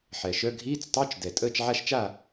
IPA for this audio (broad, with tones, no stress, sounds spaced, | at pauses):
ħ ɛ˨˩ ʃ œ˧˥˧ ɡʱ iː˧˥˧ t͡s tˤ œ˧˥˧ t͡ʃ d ɛ˨˩ tʼ əː˥˨ t͡ʃ ʕ a˥˨ ʃ t͡ʃ a˥˨